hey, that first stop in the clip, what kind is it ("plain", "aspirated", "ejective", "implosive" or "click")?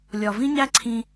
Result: click